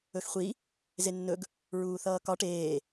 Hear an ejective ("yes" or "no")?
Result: no